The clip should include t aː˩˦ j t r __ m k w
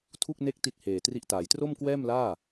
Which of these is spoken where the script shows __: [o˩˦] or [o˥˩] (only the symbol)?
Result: o˥˩